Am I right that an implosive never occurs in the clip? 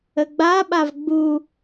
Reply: no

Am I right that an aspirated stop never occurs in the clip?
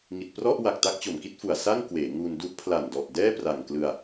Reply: no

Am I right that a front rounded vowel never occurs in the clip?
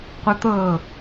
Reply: no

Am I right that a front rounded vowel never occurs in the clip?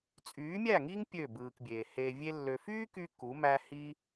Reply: no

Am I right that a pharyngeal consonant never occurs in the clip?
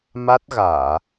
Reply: yes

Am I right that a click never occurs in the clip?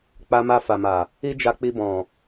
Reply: yes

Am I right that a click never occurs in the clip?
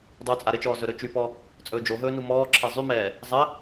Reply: no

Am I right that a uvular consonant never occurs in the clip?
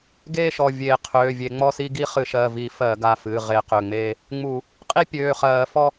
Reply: no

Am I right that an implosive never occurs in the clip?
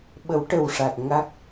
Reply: no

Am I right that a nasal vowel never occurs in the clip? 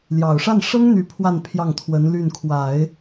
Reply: yes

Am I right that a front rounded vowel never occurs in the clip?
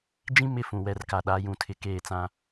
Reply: yes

